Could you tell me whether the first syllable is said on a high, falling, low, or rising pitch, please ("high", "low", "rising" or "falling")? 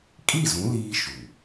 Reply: falling